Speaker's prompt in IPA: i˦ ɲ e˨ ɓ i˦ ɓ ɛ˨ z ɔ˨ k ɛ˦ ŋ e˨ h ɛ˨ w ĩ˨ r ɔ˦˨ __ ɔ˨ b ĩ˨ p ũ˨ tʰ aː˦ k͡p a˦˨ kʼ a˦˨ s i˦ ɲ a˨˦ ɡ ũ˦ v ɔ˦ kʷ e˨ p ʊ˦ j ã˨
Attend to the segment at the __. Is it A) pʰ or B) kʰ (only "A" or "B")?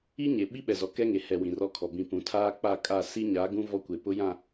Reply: B